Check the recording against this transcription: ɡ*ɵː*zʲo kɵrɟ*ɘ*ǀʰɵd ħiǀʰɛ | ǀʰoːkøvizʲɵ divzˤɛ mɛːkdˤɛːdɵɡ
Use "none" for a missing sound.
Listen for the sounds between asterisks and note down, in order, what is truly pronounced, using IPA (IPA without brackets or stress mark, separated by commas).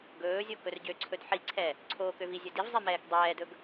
ɵː, ø